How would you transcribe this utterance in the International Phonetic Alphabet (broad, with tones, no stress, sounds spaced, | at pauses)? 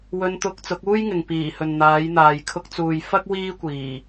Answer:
w ɵ˧ n t̪ ʊ˧ k̚ t͡s ʊ˨˥ k̚ uː˥ j ŋ ɪ˨ ŋ p iː˨˩ h ɵ˨ n n̪ aː˨˥ j n̪ aː˨ j kʰ ʊ˧ k̚ t͡s uː˨ j f ɐ˥ k̚ w iː˥ kʷ iː˨˩